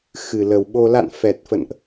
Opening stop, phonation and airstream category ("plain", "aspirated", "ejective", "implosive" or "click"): implosive